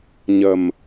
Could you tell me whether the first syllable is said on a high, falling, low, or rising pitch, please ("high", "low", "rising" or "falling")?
low